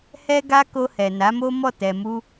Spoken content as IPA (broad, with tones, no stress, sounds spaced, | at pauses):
h ɛ˦ ɡ a˦ k o˧ h ɛ˨ n a˨˦ m o˦ m ɔ˦˨ t ɛ˨ m u˧